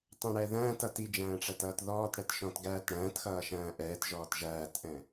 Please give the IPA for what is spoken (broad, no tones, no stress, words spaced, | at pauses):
tˤɛ̃ɽɛðæ̃ːtʌ tid͡ʒæ̃ː ʈ͡ʂætʌːtðɔːtɽɛt ʃɔ̃tɡæːtɽæ̃ːtxʌː ʃæ̃ːʔɛːtʒɔːt ʒæːtʔɛ̃